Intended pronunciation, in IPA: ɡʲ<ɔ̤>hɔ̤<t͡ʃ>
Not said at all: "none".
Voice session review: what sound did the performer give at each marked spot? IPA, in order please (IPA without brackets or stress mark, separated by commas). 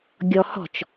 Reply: ɔ, t͡ʃ